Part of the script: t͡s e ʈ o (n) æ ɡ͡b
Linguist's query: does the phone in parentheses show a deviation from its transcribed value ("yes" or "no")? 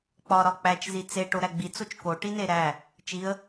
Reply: yes